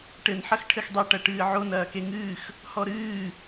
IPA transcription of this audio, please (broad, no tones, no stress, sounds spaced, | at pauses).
ʈ ɘ n ħ ɐ x ʈʰ ɘ x dˤ e ʈ ɐ ʈ ɨː ʕ o n ɐː k e ŋ ɨː x | h ɔ ɾ ɨː